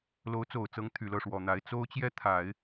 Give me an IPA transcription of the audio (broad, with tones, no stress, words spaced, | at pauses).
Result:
lo˧˥ʊ̯t͡so˨˩ʊ̯t͡sɤ˧˥ŋ t̪ʰy˨˩lɤ˥˩ʂwɔ˨˩n̪a˧˥ɪ̯ t͡so˥ʊ̯t͡ɕjɛ˥ t̪ʰa˨˩˦ɪ̯